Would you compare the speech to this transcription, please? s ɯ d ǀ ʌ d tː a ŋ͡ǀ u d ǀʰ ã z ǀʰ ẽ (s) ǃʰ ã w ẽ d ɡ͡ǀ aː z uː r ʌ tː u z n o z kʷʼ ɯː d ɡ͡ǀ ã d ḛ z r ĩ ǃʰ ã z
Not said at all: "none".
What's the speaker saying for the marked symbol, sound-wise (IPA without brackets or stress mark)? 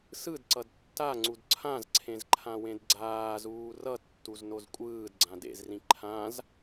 z